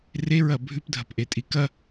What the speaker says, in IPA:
reɹɐ bʱʉpdʱɐpʔetʼi kɐ

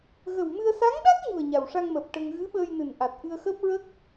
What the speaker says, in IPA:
ɣə˨˩wmɨ˧ə̯ sa˧˥ŋɗa˦˥k̚ɲu˨˩ə̯ ɲa˨˩wʂa˧ŋməː˨˩p̚ ʈə˧ŋ ɣɨ˧˥ɓəː˧jnɨ˨˩nʔa˨˩t̚ ʔɨ˧ə̯xəː˦˥p̚ɹə˦˥k̚

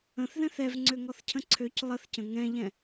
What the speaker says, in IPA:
ə̃θðɛ̃θ ɛvŋ͡ǀøŋɔθcʰə̃ ǀʰøc lˠəθcə̃ ŋɛ̃ʎɛ̃

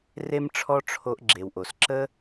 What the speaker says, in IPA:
re˦mʈ͡ʂʰɔ˦ ʈ͡ʂʰo˧ʔɡ͡ǁe˨wʔo˨s ǁə˧

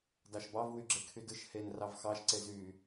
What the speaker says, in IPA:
dɑʃbɑv wyɡ͡ǁekʰydɯʃ hen rɑvxɑʃ ǀezy

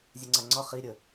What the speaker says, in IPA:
zʲɵŋ͡ǀaŋ͡ǀɒ χi ɾʲə

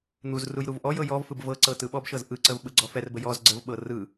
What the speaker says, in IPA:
n̪uz rujɾuvʔɔjɤ jɔvfɯb vɤǀɤ tɯɓɔbʃɤz ʔɯǀəv ɓɯɡ͡ǀɔfɛrbə jɔz ɡ͡ǀəvɓɤ rɯ

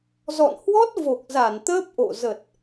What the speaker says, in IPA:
zɔ̰˧˨nhwɔ˦˥t̚ vo˨˩k̚za˧˩n t̪əː˦˥p̚ʔo̰˧˨ zə˨˩t̚

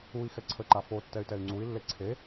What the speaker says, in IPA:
ui̯ xɛǀʰəǃa fo tːɛy̯tɛy̯ŋ͡ǀui̯lːe ǀʰe

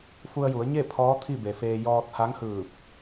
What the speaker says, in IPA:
fu˧ə̯ju˩˧ə̯ɲe˥˨ pʰɔː˧˥t̪ʰi˥˨be˩feː˧ jɔː˧t̚ha˧˥ŋhɯː˧˩p̚

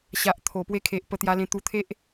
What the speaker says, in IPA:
ɕa˨ʔt̪ʰo˨˩ pwe˧kʰe˨ʔ pə˧t̪ja˧lẽ˧ t̪u˧t̪ʰe˦ʔ

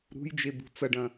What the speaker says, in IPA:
ɾṳjd͡ʒe bṳt͡sɐɖɐ̃

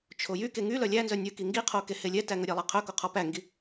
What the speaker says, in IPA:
t͡ʃʰojy keŋy lœlʲænzœ nʲɵki ŋɡiqʰokehe lʲɛtæŋɵ ɾʲælˠæqʰœko qʰɔpæŋɡi

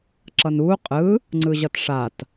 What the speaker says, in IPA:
ǁʌnuː qʼɯ | ŋ͡ǀɯʑʌtʂat

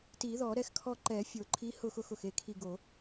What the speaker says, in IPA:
ti˨˩˦ðɔ˨˩˦ɾɛ˧˥x kʰɔ˦˨ǃɛ˨˩˦fʲo˨˩˦ǃʰi˧˥ hʊ˦˨xʊ˦˨xʊ˨˩xe˦˨ kʰi˦˨ɡo˨˩˦

